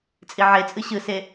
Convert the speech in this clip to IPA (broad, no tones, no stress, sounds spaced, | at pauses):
t͡sʼ i ʕ e t͡sʼ ɯ ɕ ɯ s e